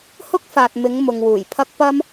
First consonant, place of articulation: glottal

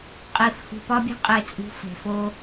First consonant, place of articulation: uvular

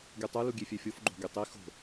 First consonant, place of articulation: velar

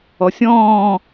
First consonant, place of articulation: alveolar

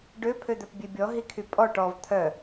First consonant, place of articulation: retroflex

